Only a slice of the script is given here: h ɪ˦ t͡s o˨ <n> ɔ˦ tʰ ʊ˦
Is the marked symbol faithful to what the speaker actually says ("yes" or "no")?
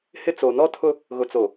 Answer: yes